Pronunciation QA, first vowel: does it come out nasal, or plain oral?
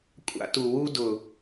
oral